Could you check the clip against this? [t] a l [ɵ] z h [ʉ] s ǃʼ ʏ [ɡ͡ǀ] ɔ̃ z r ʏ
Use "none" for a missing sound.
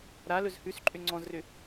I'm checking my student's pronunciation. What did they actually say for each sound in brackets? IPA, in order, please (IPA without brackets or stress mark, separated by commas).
ɾ, ɵ, ʉ, ŋ͡ǀ